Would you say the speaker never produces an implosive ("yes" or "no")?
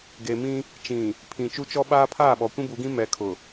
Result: no